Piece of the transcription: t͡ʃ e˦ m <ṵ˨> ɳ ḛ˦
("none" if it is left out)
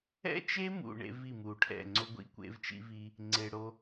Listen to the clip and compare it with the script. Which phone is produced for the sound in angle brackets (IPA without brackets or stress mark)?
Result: ṵ˨